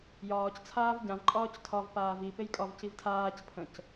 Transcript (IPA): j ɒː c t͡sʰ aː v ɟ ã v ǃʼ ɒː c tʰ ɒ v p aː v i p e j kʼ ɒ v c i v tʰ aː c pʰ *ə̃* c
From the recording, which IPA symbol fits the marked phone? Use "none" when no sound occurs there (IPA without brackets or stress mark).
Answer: ə̃